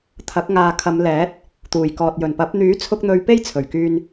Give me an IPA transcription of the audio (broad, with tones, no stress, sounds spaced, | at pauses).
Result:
t̪ʰ ɐ˨˥ k̚ ŋ aː˨ kʰ ɐ˨˧ m l ɛː˨˥ t̚ | t̪ uː˨˩ j k ɔː˨ t̚ j ɵ˨˩ n p ɐ˨˥ p̚ n̪ yː˨˥ t͡sʰ ʊ˧ k̚ n̪ ɵ˨˧ ɥ p e˥ j t͡sʰ ɵ˨˩ ɥ k yː˧ n